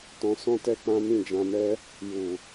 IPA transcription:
tɔ̃˧sɔ̃˦tɛ˦ k͡pã˦mĩ˦˨d͡ʒã˧mɛ˦ | ju˨

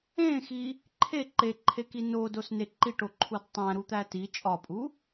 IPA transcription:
ẽxi | ǃʰe ǃeǃʰeki nodosne ǃiʈoǃʰud tˤæ̃ɾut̪æ ti t͡ʃʼɒpʼu

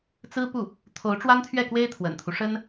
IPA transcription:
t͡sɹ̩˥pu˥˩ | t̪ʰo˧˥ʊ̯ʈ͡ʂwa˥nt̪ʰɥɛ˥˩kwe˥ɪ̯ t̪ʰwə̰˨˩nt̪ʰu˦ ʂə˥n

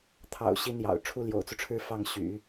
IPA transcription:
t̪ʰɑ̰˨˩ʊ̯ ɕi˥njɑ̰˨˩ʊ̯ ʈ͡ʂʰu˥ljo̰˨˩ʊ̯t͡su˦ʈ͡ʂʰɻ̩˥˧ fɑ˥˩ŋɕy̰˨˩˦

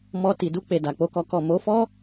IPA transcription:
mɔ˧ ti˨ du˧ k͡pe˨da˨k͡po˧kɔ˧ kɔ˨ mo˨˦fɔ˦

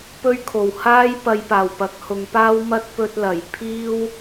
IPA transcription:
pɵ˥ɥkʰo˨˩w haː˥j pɐ˧jpaː˨˩wpɐ˨˥k̚ hʊ˨˧ŋpaː˥wmɐ˥t̚ pɵ˧t̚lɐ˨˩j pʰiː˥w

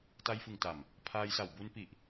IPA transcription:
ta˧jfɯ˨˩ŋta˨˩m | pʰaː˧jsa˨˩w bu˧npi˨˩ʔ

